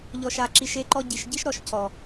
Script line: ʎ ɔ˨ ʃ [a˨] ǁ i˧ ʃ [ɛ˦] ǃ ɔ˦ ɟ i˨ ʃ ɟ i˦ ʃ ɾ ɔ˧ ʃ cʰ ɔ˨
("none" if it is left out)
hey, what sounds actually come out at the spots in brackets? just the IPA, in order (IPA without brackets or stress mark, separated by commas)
a˨, e˦